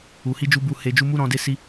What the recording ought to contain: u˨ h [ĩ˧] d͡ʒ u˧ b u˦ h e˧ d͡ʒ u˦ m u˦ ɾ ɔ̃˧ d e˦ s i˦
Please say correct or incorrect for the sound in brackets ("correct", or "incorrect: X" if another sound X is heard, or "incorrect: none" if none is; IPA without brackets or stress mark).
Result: incorrect: i˧